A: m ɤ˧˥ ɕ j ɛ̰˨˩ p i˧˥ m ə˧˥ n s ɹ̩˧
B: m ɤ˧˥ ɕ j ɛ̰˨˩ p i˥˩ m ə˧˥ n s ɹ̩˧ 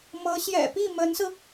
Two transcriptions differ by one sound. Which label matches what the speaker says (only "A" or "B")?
B